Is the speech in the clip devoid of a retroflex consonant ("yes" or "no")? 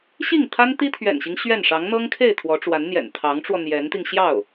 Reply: no